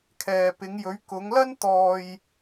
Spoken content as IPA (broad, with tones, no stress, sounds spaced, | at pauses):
kʰ ɛː˨ p ɪ˨˧ ŋ j ɵ˨˧ ɥ k ʊ˨˧ ŋ l ɐ˥ n t̪ ɔː˧ j